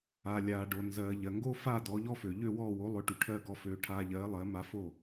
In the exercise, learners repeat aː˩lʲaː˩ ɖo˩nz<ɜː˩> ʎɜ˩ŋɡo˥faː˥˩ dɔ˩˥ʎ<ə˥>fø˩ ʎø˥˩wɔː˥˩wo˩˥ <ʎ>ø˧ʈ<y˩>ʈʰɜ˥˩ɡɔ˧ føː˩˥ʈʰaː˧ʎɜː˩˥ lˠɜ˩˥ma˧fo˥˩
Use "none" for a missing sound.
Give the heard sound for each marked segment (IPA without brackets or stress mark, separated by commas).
ɜː˩, ɔ˥, lˠ, y˩